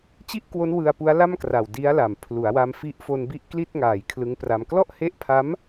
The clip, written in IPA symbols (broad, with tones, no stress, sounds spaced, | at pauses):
t͡ɕ i˥˩ ʔ k w o˦˥ n w ɯ˧ a̯ p u˦˥ a̯ l a˥˩ m k r a˨˩ w d i˦˥ a̯ l a˨˩ m pʰ l u˩˦ a̯ w a˧ m f i˦˥ ʔ f o˧ n b i˦˥ ʔ k l i˥˩ t̚ ŋ aː˨˩ j kʰ l ɯ˦˥ ŋ p r a˧ m k l ɔ˥˩ ʔ h e˦˥ ʔ pʰ a˦˥ m